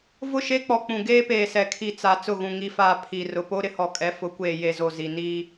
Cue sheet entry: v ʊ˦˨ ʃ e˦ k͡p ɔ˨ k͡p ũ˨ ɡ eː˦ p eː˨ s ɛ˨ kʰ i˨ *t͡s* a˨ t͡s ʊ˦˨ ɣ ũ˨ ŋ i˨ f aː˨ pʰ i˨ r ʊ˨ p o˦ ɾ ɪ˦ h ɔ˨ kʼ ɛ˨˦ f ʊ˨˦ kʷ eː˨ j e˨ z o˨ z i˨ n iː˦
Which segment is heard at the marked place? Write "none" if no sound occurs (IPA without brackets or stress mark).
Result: t͡s